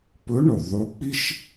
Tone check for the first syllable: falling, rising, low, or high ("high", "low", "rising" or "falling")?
rising